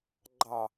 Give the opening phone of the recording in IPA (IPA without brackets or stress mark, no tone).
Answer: ɡ͡ǃ